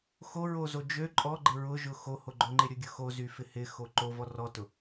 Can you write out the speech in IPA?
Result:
x o ɹ o z o d͡ʒ ø ǃʼ ɔ ɡ͡ǃ ɪ ɹ ʊ ʒ ʊ x o h o ɡ͡ǃ ʊ ŋ͡ǃ ɪ ɾʲ ʊ ɡʲ ʊ x o z y f ɪ h ɪ x o ǃ o v ɔ r ɔ t ʊ

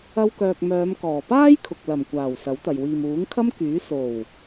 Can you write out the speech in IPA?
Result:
ɐ˧ w k œː˨ k̚ m œː˨˧ m k ɔː˨˩ p aː˥ j kʰ ʊ˨ k̚ l ɐ˨˩ m kʷ aː˨˩ w s ɐ˨˥ w t̪ ɐ˨ j w iː˨ m uː˨˥ ŋ kʰ ɐ˥ m k yː˨˥ s o˨˩ w

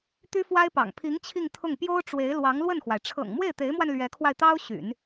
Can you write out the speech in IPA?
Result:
t̪ y˥ f w a˥ ɪ̯ p ɑ̰˨˩ ŋ pʰ i˧˥ ŋ t͡ɕʰ i˥˧ ŋ t̪ʰ ʊ˥˩ ŋ p j o˥ ʊ̯ ʈ͡ʂ w e˧˥ ɪ̯ l w ɑ˧˥ ŋ l w ə˥˩ n x w a˩ ɪ̯ ʈ͡ʂʰ ɤ̰˨˩ ŋ m w e˥˩ ɪ̯ t̪ e˧˥ ɪ̯ m w a˧ n l ɥ ɛ˧˥ kʰ w a˧ ɪ̯ t̪ ɑ˥ ʊ̯ ɕ y̰˨˩˦ n

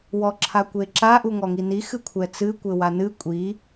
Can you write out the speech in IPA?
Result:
w ɔ ǁʰ a kʷ e ǁ a ʔ u ŋ ɔ ŋ i n i x ɨ kʷʰ ɛ t͡s ɨ kʷ ɘ w a n ɨ kʷʼ i

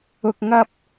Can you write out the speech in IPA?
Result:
ʊ˥ k̚ ŋ ɐ˥ p̚

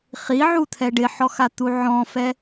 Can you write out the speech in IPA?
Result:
χ i ʕ u t̪ʰ ɛ ɖ ɪ ħ ɔ x a t̪ u ʕ ɔ̃ f ɛ

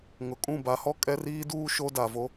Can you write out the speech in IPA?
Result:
ŋ ʊ˨ kʼ ũ˦˨ b a˨˦ h ɔ˦ kʼ ɛ˦ r iː˦ d uː˦ ʃ o˦ d a˨ v o˦

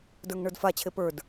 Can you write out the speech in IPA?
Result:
d ə˞ ŋ ɳ ə˞ d f a t͡ɕʰ e p ə˞ d

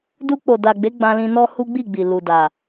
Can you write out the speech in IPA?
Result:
d u˧ k͡p o˨ d a˨ ɡ͡b e˨˦ ɡ͡b ã˧ l ĩ˧ n ɔ˦ h u˦ ɡ͡b i˦˨ ɡ͡b i˨ l u˨ d a˨

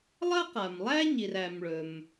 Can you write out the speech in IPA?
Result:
lˠ ɐ˥ q a˩ m lˠ æ˥ ɲ i˩ r æ˩ m ɭ ɵ˩ m

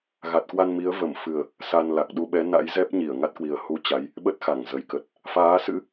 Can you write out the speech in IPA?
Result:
ɣ a˨˩ t̚ k w a˧ n m i˨˦ ə̯ v ə˧˩ m f ɨ˨˩ ə̯ | s a˧ n l a˨˩ k̚ ɗ u˧ ɓ ɛ˨˦ n a̰˧˥ j z ɛ˦˥ p̚ ɲ i˧˩ ə̯ ŋ a˦˥ t̚ k w i˨˩ ə̯ h u˨˦ t͡ɕ a˨˦ j | ɓ ə˦˥ t̚ x a˧˩ ŋ z ə˨˩ j k ə˨˩ t̚ | f aː˨˦ s ɨ̰˧˥

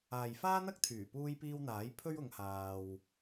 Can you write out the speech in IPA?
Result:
aː˨ j f aː˥ n̪ ɐ˥ k̚ t̪ʰ yː˨˩ p uː˥ j p iː˥ w n̪ aː˨˥ j pʰ ɵ˥ ɥ ʊ˨˧ ŋ h aː˧ w

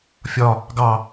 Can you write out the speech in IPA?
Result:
fʲ ɒ | ɡ ɑ

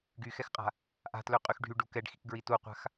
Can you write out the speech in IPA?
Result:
ɡ y x ɛ x qʼ a̤ | ʔ a̤ t l ø qʼ y x ɖʱ y ɖ u k ɛ ɖ x i k ɡ ɹ i t u qʷ a̤ x

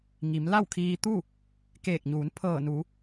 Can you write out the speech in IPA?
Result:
ŋ i˩˧ m l a˥˨ w kʰ iː˧ t̪ u˥˨ | k eː˧˩ k̚ ɲ uː˩˧ n pʰ ɤː˧˩ n u˩˧

